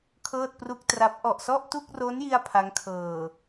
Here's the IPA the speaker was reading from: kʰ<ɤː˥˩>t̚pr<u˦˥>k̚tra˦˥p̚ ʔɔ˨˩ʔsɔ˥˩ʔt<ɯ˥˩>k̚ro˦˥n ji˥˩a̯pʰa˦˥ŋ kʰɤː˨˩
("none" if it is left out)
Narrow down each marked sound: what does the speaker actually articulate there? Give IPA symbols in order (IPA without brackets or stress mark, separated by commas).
ɤː˥˩, u˥˩, u˥˩